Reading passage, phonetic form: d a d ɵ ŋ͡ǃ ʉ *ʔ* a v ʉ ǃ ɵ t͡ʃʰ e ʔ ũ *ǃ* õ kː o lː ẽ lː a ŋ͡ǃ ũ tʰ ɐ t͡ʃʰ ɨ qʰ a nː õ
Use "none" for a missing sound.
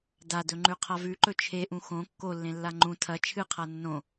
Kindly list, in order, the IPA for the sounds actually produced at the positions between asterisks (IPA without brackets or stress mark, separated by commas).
qʰ, x